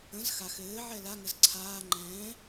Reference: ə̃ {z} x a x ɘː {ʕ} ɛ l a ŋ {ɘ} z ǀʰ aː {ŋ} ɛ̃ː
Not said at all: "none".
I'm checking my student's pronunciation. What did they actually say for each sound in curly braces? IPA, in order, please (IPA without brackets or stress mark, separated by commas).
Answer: z, ʕ, ɘ, ŋ͡ǃ